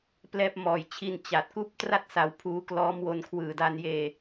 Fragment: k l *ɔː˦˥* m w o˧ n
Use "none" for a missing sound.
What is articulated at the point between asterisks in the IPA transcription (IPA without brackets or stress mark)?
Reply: ɔː˦˥